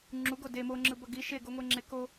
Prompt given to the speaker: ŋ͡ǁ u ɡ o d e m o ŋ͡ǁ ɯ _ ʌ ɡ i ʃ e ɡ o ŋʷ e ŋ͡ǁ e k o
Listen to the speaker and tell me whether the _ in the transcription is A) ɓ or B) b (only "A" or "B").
B